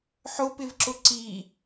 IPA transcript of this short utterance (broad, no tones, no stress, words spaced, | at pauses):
ħʊpɪvǁʊ ǀi